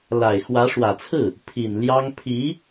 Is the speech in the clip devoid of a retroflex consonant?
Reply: no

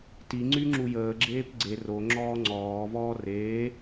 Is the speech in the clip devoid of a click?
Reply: no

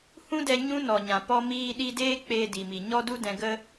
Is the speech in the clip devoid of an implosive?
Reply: no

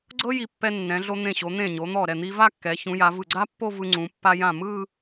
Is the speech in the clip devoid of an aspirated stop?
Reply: yes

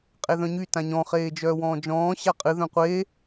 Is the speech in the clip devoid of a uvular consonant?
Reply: no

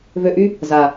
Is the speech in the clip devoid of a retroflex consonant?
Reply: yes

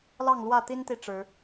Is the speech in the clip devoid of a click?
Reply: yes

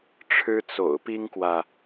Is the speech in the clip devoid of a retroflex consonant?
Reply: no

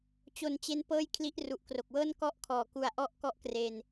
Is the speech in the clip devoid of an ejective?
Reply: yes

